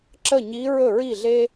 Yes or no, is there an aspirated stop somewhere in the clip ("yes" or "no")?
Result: no